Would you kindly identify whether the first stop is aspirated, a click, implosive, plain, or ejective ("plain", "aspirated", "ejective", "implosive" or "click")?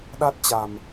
implosive